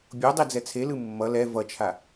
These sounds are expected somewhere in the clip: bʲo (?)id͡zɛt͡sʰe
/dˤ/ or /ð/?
dˤ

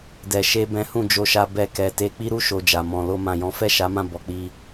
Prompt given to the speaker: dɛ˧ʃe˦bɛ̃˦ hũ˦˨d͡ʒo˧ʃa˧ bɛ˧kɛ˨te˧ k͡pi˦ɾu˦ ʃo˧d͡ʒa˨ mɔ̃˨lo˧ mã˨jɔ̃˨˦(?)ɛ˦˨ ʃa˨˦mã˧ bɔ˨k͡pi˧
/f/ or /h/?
f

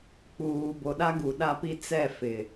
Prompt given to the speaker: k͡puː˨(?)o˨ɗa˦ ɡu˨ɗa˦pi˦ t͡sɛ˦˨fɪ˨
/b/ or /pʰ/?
b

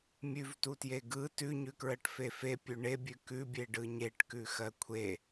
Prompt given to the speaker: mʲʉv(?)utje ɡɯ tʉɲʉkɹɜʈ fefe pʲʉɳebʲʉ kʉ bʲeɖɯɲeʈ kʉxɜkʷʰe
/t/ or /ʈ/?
t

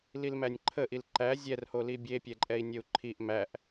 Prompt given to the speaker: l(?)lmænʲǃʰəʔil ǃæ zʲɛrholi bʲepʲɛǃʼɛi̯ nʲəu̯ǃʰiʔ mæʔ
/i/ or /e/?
i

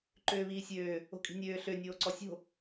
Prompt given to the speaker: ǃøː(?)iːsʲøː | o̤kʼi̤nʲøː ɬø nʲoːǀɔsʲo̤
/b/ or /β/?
β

